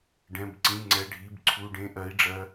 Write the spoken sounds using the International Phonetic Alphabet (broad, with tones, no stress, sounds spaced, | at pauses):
ɖ ɛ̃˩˧˩ b ǀ ĩ˩˧˩ ŋ͡ǀ ɛ˩˧˩ ɖʱ i˩˧˩ b ǀʰ u˩˧˩ ɖ ẽ˩˧˩ ʔ ɜ˩˧ i̯ ɖ͡ʐ ɜ˩˧